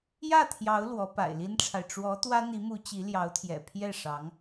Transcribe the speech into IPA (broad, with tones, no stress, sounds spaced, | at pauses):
j ä˥˩ t̪ʰ j ɑ˧˥ ʊ̯ l w ɔ˧˥ p a̰˨˩ ɪ̯ l i˥ n ʈ͡ʂʰ a˨ ɪ̯ ʈ͡ʂ w ɔ˧˥ t̪ w ä˥ n̪ i˧˥ m u˧˥ t͡ɕ i˧˥ l j ɑ˧˥ ʊ̯ t̪ʰ j ɛ̰˨˩ pʰ j ɛ˥˩ ʂ ɑ˧˥ ŋ